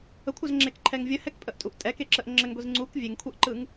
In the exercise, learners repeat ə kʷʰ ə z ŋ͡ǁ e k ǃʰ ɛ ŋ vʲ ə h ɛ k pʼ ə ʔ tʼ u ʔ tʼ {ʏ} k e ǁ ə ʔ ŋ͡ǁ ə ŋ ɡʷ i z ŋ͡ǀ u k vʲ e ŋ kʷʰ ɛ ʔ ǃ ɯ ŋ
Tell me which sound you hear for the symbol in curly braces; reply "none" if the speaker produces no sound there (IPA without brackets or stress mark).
ɛ